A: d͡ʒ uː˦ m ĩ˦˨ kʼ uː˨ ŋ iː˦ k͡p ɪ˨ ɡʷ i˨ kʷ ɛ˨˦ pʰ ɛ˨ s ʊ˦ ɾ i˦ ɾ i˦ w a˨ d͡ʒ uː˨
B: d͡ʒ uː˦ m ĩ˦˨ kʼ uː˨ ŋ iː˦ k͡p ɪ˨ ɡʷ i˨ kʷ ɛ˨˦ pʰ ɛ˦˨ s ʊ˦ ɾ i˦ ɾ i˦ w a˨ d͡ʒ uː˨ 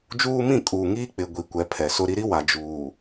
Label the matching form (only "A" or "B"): A